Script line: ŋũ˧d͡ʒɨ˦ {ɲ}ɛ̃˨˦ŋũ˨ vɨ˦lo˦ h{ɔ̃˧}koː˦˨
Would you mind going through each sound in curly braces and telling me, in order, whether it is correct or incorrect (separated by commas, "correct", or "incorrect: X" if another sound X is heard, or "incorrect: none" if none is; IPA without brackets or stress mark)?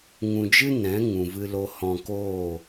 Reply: incorrect: n, correct